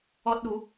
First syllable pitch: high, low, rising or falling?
high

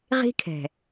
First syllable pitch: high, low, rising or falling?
high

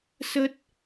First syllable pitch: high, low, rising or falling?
high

